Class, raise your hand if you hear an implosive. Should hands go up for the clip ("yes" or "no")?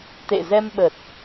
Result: yes